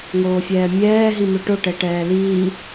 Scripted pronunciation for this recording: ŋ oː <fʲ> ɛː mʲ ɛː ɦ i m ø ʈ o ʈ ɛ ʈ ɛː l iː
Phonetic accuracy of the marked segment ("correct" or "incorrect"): correct